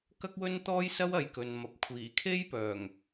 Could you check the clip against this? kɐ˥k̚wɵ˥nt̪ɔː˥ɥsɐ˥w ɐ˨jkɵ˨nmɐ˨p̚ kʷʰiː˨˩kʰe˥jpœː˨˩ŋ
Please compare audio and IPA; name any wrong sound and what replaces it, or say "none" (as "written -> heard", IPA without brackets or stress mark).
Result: ɥ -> j